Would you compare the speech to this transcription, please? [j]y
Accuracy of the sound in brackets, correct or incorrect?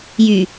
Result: correct